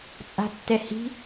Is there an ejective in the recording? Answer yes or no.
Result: yes